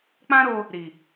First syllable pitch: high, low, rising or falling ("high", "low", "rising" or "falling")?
high